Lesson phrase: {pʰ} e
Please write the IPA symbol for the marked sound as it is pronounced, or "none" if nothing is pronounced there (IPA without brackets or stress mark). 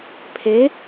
pʰ